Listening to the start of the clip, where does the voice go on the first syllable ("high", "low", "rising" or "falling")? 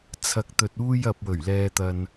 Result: low